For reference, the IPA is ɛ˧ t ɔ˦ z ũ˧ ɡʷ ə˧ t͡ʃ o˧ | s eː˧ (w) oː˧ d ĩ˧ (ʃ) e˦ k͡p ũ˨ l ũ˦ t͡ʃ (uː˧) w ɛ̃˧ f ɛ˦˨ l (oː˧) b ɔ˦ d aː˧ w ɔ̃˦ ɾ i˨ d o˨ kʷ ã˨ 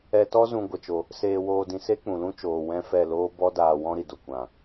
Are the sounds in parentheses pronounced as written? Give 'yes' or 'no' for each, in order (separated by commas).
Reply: yes, no, no, no